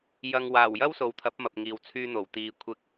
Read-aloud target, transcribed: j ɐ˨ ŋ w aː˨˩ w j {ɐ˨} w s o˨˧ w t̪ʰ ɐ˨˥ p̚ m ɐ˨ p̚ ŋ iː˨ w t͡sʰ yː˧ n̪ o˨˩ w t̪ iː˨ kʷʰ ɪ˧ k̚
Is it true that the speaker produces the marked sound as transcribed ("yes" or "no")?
no